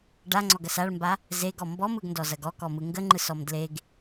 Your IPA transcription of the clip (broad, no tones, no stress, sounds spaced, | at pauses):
ɖ a ŋ͡ǀ ɔ ɡ ɐ s a ɭ m b a | z e ɡ ɔ m b ɔ m ɯ ɡ n d ɔ z ɐ ɡ ɔ k ɔ m ɯ ŋ ɡ ə ŋ͡ǃ ɯ s ɔ m d l e ɡ